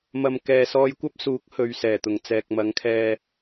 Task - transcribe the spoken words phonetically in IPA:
m ɐ˧ m k ɛː˨ s ɔː˧ j kʷ ɐ˥ p̚ s uː˨˥ k̚ h ɵ˨ ɥ s ɛː˨˩ t̪ ʊ˨˩ ŋ t͡s ɛː˨ k̚ m ɐ˨˥ ŋ kʰ ɛː˧

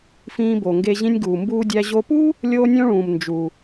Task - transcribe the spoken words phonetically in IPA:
f ĩː˧ b o˩ ŋ ɡ e˧ ʑ ĩ˧ nʲ ɡ uː˩ m b uː˧ dʲ æ˧ ʑ o˧ p u˥ | lʲ oː˧ nʲ õ˧ ɭ ũː˩ m n d͡ʒ u˩

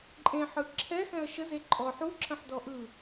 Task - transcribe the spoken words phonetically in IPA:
ǃʼ ẽ ħ ɯ ǁʰ ɛ x ɛ̃ ə̯ ʃ ə z e ǃʼ ɔ ħ u ǁʰ ə̃ ħ d ɔ ʔ ɯ

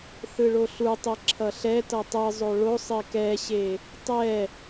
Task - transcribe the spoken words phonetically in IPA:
θ ɯ ɭ o ɬ u tˤ e ǁʰ ʌ ɬ ɛ t ʌ tˤ ɯ zˤ o ɭ o sˤ e k ɛ ɕ e | tˤ ɛ

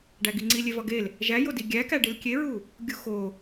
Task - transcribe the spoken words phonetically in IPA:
ɖ æ ɡ i ŋ͡ǀ i lʲ e v ɒ ɡ e l | ʒ æ j o d i ɡʲ æ k æ ɖ i l kʲ e ɹ u | ɡʲ u x o

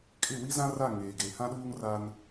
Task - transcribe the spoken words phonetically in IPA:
kʼ ɪ˦˨ w i˦ z ã˦ r a˦˨ ŋ eː˨ ɡ e˨ h ã˦ ɗ uː˦ ŋ r a˦ n

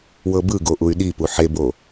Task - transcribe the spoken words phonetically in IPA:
w ɤ b ɯ ɡ o ʔ u y̯ ɗ i p u ħ e b o

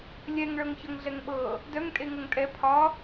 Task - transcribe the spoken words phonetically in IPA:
lʲ ɛ ŋ ɭ ɤ ŋ ç ɤ ŋ ɮ ɛ ŋ ɓ ɤ | d œ ŋ tʼ e ŋ ɤ ŋ tʼ ɛ pʰ ɒ

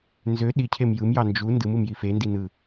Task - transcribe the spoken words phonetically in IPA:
n z ø ɗ i cʰ e m j ɯ m j ɑ n d͡ʒ u n d ɯ m ɯ m j i f e n d i n ɯ

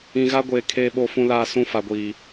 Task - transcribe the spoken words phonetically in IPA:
ĩ˨ ɣ a˦ ɡʷ eː˨ kʰ eː˨ ɓ o˨ f ũ˨ l aː˨ s ũ˦ f a˨ ɡʷ iː˨

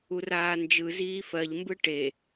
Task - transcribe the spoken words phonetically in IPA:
u r aː n d͡ʒ ɯ z iː f ɜ ʎ m b ɯ ʈ e

